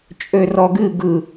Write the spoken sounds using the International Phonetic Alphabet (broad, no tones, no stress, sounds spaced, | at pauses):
t͡ʃʼ ø r ɔ ɡ ɨ ɡ ɯ